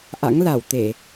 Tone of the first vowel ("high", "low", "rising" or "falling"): rising